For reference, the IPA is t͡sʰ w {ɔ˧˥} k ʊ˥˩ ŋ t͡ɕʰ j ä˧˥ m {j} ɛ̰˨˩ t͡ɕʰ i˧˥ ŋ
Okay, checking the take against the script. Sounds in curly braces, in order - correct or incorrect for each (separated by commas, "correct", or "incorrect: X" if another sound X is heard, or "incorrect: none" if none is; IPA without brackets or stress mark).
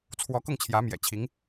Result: correct, correct